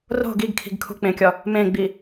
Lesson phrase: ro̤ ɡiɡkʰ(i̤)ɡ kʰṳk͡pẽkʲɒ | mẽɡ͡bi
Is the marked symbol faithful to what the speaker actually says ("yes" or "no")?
yes